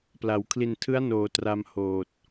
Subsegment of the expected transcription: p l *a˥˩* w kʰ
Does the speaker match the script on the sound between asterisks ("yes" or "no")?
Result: no